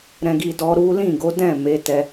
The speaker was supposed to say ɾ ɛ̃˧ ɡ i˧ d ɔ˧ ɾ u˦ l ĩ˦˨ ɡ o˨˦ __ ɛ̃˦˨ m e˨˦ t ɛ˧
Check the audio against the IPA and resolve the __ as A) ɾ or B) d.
B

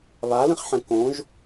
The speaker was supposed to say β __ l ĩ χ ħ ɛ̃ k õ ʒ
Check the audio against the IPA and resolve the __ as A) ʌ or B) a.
B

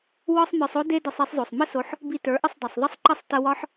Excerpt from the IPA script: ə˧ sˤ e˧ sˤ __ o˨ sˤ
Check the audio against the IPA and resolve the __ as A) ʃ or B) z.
B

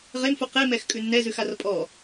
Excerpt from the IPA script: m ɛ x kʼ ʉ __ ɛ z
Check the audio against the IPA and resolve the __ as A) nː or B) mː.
A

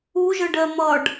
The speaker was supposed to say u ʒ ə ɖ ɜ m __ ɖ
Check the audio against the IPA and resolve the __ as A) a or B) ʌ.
B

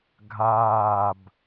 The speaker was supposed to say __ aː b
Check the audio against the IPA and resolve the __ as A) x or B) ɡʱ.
B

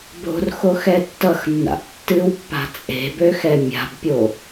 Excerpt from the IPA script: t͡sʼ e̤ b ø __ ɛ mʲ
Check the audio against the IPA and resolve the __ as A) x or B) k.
A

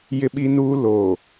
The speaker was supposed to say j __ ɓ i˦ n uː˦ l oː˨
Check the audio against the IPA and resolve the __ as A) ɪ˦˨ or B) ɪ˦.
B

